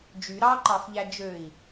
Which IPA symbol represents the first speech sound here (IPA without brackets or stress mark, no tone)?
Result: d͡ʒ